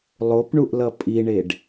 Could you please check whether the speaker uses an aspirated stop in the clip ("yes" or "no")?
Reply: no